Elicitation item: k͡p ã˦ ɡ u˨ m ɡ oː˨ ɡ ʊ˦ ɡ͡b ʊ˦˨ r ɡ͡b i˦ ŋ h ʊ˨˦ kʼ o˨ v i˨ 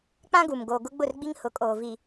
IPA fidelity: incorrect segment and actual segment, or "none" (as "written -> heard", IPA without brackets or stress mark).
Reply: o˨ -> oː˨